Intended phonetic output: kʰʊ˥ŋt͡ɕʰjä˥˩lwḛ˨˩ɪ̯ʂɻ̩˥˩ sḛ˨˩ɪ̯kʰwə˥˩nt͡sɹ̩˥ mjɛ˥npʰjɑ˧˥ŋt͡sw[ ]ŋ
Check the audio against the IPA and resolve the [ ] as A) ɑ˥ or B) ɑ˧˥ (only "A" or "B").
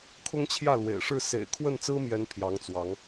B